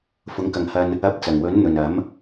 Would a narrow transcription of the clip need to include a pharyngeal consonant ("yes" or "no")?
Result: no